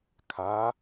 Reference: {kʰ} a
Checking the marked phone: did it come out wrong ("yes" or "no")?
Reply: no